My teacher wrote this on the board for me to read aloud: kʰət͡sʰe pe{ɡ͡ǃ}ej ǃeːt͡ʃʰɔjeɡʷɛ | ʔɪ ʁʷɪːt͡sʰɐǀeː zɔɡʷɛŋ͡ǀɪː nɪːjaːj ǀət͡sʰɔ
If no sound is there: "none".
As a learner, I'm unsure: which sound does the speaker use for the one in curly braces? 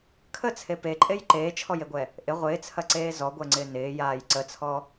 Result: ǃʼ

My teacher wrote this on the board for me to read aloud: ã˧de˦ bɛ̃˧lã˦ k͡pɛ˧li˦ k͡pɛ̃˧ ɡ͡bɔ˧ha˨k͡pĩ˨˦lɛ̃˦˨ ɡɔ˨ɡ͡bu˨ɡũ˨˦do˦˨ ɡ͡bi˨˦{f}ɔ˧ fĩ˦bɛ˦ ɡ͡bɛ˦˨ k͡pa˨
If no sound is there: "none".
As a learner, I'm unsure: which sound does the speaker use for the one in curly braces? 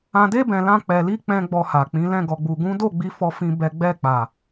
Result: f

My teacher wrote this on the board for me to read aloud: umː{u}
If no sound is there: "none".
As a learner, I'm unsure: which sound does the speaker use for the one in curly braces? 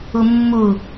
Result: u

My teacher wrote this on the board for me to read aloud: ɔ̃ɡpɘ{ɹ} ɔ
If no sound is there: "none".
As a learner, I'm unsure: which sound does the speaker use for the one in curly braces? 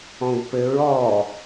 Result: ɹ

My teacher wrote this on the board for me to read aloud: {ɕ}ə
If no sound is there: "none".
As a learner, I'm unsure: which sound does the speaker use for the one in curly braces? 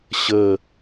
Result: ɕ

